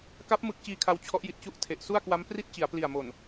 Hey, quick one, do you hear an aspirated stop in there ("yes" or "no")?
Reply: yes